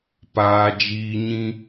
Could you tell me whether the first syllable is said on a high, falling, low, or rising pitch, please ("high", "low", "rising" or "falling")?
high